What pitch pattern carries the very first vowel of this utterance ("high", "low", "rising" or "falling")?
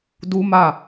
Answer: high